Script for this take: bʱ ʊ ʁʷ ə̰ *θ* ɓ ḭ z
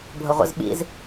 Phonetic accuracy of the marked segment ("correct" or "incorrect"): incorrect